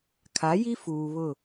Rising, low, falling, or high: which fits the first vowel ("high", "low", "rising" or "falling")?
rising